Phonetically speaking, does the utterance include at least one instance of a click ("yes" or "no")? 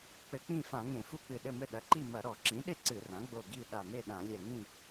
yes